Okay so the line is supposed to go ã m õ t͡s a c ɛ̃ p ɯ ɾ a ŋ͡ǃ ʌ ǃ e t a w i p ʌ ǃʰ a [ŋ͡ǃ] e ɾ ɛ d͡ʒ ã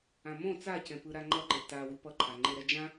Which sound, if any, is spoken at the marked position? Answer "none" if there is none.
ŋ͡ǃ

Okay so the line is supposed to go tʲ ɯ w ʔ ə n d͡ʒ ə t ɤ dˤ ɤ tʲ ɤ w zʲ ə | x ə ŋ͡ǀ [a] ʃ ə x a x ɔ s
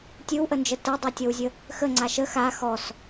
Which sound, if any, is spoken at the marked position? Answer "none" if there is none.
a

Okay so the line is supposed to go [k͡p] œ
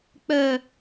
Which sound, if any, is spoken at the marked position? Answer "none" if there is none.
k͡p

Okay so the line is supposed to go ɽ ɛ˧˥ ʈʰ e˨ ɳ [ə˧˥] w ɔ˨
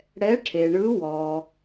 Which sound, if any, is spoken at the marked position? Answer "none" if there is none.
ɯ˧˥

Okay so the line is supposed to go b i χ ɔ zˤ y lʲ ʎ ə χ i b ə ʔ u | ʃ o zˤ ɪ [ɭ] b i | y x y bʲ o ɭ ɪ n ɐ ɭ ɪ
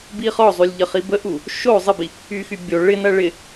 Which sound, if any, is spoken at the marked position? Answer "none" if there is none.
none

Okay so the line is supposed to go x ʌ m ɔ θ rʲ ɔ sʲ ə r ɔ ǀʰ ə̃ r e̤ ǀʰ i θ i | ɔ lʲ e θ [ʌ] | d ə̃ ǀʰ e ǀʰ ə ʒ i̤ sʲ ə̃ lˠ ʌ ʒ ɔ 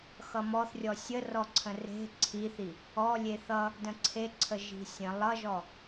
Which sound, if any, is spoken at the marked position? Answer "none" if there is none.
ʌ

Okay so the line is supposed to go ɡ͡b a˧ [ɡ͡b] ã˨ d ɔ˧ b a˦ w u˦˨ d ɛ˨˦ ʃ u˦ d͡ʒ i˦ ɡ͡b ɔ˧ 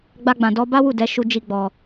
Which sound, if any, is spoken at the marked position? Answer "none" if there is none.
ɡ͡b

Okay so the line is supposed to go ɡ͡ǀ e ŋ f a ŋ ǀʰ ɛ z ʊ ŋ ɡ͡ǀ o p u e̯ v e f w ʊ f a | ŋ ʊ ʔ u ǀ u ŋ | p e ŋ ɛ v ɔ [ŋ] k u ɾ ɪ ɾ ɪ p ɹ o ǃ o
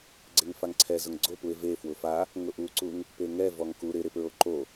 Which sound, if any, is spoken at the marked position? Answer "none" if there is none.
ŋ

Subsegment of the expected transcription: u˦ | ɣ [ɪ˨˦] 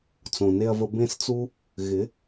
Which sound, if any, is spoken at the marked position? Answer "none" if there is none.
ɪ˨˦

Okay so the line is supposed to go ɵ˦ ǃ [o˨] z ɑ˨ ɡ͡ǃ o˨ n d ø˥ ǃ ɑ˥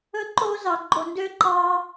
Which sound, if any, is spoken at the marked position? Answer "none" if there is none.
o˦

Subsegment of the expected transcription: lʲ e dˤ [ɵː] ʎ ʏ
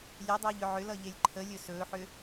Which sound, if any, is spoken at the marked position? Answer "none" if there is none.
ɵː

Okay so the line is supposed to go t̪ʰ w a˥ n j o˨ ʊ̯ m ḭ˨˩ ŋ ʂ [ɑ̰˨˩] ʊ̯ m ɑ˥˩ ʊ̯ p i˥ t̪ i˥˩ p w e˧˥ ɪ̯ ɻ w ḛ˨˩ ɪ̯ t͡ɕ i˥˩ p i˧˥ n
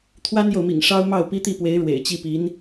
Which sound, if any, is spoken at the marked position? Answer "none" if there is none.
ɑ˥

